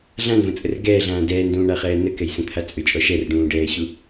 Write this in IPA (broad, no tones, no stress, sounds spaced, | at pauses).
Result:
ɮ ã n v ə̃ t͡sʼ ə r ɡ ɛː ɮ ãː d ɛː n d ũː ɳ a χ ɛː n ə k ɛ j s ə̃ t̪ʰ a t͡sʼ ʏ t͡ʃʼ ɔ ʃ ɛ r ɖ ũː ɖ ɛː ɕ u